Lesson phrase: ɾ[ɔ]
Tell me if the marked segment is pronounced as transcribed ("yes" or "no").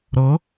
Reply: no